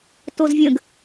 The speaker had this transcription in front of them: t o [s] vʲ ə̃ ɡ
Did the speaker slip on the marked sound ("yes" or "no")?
yes